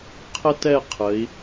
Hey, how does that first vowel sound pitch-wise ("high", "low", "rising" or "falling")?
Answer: high